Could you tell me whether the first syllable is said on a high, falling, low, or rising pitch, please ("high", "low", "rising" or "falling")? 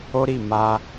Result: high